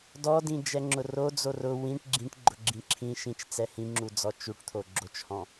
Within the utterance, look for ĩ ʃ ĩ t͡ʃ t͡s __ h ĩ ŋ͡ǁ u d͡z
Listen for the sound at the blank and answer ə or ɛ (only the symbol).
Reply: ɛ